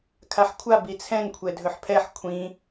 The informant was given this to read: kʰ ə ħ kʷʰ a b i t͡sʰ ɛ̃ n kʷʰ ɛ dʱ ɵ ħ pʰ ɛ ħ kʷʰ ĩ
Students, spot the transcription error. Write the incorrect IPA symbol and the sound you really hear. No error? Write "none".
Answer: ə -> a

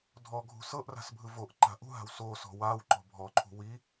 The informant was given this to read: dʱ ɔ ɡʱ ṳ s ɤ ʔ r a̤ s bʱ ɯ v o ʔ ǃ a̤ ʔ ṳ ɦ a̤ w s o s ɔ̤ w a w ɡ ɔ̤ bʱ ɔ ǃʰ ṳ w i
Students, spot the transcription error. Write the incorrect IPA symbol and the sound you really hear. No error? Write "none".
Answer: ɡ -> ǃ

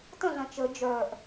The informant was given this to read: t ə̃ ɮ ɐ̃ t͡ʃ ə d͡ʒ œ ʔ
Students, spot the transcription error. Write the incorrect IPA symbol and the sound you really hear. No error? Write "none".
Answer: none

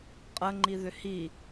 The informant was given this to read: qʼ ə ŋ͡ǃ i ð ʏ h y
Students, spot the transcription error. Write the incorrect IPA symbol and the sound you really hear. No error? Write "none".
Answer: y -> i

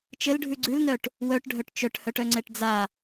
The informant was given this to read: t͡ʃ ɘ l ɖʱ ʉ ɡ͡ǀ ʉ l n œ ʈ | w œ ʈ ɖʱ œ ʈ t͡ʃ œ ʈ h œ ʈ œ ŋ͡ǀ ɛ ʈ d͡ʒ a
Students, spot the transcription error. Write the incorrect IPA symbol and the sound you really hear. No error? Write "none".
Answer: d͡ʒ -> d͡z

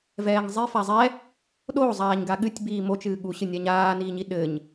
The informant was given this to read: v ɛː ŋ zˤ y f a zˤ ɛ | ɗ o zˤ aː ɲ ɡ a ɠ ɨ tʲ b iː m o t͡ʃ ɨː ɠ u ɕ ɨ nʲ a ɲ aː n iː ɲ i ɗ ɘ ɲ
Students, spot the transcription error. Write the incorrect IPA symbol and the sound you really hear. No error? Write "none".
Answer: y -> i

